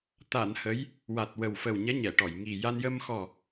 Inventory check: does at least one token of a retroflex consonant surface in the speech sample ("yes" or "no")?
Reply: yes